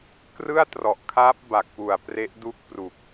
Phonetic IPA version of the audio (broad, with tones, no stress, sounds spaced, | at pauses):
k r ɯ˥˩ a̯ t r ɔ˨˩ ʔ kʰ aː˦˥ p̚ b a˨˩ k̚ p u˨˩ a̯ p r e˦˥ ʔ d u˥˩ k̚ p r u˨˩ k̚